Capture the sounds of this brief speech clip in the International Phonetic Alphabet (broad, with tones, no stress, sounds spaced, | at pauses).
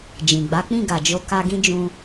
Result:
d͡ʒ ĩ˨ ɡ͡b a˨˦ k͡p ĩ˦˨ ɡ a˨ d͡ʒ o˧ k a˧ ɡ ĩ˦ d͡ʒ ũ˧